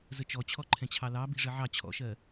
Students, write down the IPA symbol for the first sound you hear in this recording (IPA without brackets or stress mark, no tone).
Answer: z